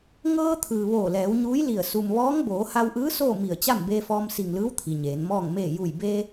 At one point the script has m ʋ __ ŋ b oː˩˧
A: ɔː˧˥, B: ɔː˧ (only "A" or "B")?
A